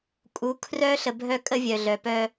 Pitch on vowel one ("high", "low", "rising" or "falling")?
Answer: rising